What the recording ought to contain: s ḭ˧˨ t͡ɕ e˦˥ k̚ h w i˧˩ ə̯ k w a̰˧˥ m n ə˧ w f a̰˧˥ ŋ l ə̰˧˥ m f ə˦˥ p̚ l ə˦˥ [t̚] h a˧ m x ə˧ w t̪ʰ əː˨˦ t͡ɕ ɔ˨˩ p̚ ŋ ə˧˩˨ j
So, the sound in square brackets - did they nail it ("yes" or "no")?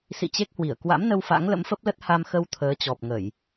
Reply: yes